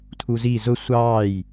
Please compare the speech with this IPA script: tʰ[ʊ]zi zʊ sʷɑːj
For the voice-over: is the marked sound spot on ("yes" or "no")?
no